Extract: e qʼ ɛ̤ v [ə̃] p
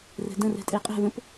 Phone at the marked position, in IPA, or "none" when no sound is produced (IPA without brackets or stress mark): ə̃